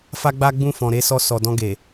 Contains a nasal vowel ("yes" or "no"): yes